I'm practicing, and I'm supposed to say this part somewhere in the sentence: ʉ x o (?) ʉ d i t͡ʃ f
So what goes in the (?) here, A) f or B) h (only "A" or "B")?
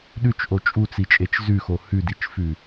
B